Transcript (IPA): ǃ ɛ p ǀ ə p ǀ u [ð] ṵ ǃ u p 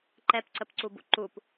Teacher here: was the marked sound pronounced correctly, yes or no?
no